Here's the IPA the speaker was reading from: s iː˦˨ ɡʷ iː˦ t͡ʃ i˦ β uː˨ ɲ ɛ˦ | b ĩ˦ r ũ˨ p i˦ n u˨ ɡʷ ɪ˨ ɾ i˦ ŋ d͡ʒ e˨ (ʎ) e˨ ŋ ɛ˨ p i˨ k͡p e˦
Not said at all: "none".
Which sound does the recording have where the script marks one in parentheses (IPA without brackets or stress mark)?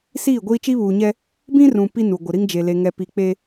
l